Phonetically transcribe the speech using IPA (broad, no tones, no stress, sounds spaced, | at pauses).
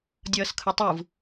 dʲ ʌː s kʰ ɯ tˤ ɯ v